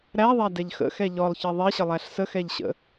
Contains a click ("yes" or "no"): no